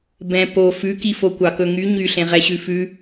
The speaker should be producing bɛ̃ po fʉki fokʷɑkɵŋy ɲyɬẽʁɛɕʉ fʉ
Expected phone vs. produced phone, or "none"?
none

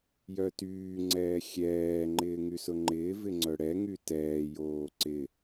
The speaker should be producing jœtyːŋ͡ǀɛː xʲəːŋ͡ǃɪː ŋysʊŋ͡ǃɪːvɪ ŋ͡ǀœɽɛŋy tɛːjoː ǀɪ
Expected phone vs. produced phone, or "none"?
əː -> ɛː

